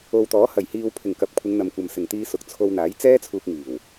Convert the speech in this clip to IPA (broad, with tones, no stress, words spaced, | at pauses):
o˨wt̪ɔː˨˥ hɐ˨˩jhiː˨wpʰɪ˨˩ŋkɐ˨p̚ kʷʰɪ˨˧ŋn̪ɐ˨mkʷɐ˨msɪ˨˩ŋ t̪iː˧sʊ˨˥k̚t͡sʰo˧wn̪aː˨˥j t͡sɛː˥t͡sʰuː˧k̚ŋiː˨˩w